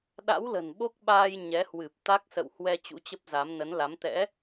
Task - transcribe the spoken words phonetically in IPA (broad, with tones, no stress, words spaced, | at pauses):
ɗa̰˧˥wlə̤˨˩n ɓo˦˥k̚ɓaː˧j ɲɛ˨˦hwɨ˨˩p̚ t̪a˦˥k̚sə̰˧˨whwɛ˧ t͡ɕṵ˧˥t͡ɕə˦˥p̚za˨˦m nə˨˦nla˨˦m t̪ɛ̰˧˥